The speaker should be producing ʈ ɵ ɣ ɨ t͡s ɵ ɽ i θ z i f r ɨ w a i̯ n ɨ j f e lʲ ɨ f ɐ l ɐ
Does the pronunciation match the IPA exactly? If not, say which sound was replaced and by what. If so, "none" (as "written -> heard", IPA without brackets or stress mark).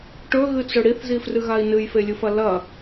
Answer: w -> ɣ